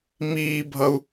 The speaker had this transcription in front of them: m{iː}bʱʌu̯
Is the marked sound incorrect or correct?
correct